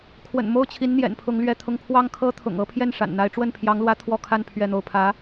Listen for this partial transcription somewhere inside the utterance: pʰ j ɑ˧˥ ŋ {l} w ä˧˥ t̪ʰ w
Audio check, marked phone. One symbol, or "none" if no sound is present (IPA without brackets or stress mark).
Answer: l